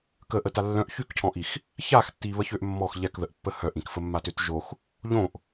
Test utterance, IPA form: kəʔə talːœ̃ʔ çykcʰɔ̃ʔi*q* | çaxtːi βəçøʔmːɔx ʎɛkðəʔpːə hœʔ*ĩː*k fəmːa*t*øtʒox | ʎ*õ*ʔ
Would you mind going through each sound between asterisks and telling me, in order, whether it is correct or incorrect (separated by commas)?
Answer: incorrect, incorrect, correct, correct